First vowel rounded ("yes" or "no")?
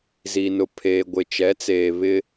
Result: no